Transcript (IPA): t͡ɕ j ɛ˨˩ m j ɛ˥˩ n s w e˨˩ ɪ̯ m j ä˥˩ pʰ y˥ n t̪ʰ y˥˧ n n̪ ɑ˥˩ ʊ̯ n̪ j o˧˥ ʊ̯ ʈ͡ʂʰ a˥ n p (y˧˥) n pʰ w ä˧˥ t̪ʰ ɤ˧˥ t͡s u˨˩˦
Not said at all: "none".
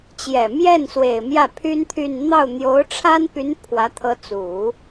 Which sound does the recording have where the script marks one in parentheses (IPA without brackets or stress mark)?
y˧˥